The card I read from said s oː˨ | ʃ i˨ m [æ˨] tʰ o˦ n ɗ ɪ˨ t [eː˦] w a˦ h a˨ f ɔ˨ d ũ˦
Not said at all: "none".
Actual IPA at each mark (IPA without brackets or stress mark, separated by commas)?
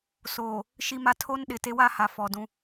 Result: a˨, e˦